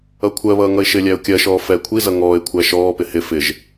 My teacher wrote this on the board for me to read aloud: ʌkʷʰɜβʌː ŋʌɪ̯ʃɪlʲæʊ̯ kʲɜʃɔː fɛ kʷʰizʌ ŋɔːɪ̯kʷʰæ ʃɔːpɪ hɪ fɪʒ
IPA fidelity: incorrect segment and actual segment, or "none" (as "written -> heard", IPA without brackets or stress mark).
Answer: none